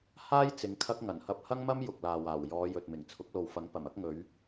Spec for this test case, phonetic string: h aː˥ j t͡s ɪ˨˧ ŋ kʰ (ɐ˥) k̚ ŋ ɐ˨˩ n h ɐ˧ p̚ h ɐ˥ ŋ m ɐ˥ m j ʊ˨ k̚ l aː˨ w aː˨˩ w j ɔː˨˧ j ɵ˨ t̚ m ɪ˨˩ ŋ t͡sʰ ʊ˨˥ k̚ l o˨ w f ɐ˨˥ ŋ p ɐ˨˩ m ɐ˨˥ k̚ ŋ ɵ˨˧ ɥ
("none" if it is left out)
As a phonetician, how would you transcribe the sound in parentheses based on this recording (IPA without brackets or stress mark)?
ɐ˥